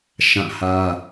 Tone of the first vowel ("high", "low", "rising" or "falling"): falling